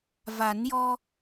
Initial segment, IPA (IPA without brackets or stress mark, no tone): v